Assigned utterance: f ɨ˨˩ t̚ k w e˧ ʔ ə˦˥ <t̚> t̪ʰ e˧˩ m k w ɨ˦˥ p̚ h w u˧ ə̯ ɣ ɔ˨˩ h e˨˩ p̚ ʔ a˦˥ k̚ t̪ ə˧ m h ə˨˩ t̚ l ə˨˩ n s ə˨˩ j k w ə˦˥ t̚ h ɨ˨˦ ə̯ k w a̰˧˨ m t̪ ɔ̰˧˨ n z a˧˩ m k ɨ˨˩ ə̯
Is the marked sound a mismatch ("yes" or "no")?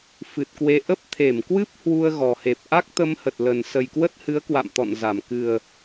yes